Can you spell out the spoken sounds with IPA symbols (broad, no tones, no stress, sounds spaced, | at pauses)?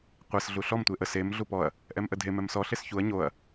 qʷ ɛ s ɮ u ɬ ɔ m tʷ e ʔ ə s e m ɮ u p ɔ ɐ̯ | ʔ ɛ m ʔ ə dʱ e m ɛ m s ɔ ɬ e s ç u ɐ̯ ɲ o ɐ̯